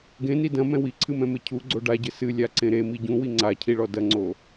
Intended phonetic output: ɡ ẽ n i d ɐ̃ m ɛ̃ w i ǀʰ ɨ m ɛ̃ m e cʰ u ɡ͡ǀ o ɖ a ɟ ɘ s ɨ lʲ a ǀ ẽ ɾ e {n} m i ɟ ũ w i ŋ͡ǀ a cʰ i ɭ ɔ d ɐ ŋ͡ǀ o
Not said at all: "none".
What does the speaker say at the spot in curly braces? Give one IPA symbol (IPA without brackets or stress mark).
none